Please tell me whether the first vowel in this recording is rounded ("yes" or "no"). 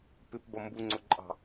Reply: no